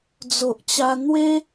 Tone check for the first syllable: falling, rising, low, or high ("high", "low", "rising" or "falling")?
low